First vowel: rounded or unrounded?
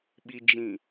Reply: unrounded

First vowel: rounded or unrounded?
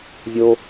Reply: rounded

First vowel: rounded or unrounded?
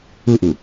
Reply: rounded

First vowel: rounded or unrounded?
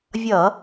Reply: unrounded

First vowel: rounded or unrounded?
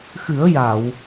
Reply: unrounded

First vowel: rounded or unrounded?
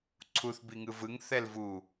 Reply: rounded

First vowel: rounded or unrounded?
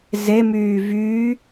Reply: unrounded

